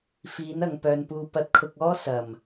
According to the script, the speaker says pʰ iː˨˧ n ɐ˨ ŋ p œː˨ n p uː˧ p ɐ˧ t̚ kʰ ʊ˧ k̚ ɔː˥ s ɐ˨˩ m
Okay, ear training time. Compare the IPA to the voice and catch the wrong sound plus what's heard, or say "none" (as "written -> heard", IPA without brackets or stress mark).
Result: pʰ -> f